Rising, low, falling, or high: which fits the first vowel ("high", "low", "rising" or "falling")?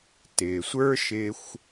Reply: low